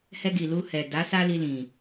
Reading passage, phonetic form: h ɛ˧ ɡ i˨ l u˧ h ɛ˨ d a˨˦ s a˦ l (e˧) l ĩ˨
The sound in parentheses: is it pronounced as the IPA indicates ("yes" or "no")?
no